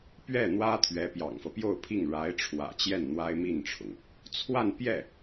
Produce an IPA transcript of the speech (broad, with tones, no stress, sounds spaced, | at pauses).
p ɥ ɛ˥˩ n̪ w ä˥ t̪ʰ ɥ ɛ˧˥ p j ɑ̰˨˩ ŋ f ɤ˦ p j o˥˧ ʊ̯ pʰ i˥˩ ŋ ɻ a˧˥ ɪ̯ ʈ͡ʂʰ w ä̰˨˩ t͡ɕ j ɛ˥˩ n n̪ w a˥ ɪ̯ m i˥˩ n ʈ͡ʂʰ ʊ˩ ŋ | t͡sʰ w a˥˧ n p j ɛ˥˩